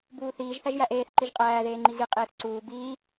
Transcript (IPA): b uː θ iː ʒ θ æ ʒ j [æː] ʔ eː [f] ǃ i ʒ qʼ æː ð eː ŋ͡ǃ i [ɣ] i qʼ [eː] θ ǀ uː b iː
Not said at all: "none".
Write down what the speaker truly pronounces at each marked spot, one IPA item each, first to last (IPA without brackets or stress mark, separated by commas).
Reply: æ, θ, ɣ, eː